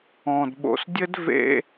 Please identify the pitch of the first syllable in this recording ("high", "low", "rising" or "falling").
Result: low